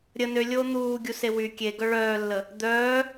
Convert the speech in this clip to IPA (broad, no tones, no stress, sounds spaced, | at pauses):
ɾʲ ə n ø lʲ oː n̪ uː ɡʲ u s e w y kʲ e ɡ œ ɭ œː lː ə | d̪ œː